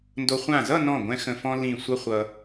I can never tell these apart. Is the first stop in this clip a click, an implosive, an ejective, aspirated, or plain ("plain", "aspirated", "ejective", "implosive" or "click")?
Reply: plain